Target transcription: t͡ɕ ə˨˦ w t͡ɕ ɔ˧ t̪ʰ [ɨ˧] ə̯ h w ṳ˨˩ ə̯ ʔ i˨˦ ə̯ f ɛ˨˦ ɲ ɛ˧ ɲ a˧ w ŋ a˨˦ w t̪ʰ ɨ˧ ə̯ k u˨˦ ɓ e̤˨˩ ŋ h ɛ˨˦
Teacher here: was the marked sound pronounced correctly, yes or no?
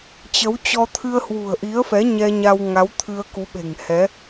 yes